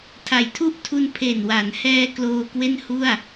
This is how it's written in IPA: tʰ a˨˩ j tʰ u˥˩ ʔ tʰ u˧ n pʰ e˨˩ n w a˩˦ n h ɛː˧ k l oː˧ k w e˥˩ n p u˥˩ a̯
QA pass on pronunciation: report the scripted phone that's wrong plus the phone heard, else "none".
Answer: p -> h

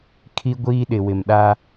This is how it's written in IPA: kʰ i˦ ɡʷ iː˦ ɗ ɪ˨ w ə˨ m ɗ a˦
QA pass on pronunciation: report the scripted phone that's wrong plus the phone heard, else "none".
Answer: ə˨ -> ɪ˨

